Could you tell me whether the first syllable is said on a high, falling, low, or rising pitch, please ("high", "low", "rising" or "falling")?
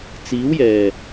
rising